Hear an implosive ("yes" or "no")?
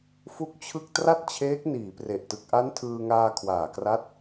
no